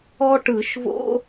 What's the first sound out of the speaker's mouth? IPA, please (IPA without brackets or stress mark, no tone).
ɔ